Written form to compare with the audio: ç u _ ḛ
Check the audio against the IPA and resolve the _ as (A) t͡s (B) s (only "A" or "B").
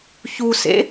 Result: B